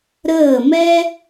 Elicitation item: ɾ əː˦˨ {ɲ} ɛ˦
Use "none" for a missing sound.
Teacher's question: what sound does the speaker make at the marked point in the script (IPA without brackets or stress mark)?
m